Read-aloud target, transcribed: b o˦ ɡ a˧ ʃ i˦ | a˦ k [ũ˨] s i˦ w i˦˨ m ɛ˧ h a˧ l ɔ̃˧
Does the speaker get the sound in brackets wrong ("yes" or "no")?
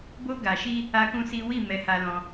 yes